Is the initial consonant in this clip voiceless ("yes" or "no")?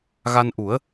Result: no